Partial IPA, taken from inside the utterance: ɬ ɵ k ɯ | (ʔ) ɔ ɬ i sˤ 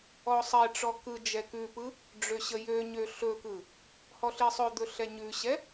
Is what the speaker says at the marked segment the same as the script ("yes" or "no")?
no